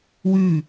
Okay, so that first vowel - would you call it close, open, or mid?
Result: close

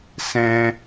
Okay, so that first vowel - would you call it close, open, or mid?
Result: mid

